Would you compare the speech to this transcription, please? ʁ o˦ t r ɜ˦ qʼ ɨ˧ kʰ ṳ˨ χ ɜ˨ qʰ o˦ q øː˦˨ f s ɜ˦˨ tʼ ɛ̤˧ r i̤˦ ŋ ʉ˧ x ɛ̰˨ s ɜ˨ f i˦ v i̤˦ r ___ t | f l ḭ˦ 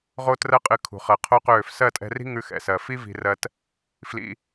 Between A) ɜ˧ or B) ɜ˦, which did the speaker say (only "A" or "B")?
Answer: B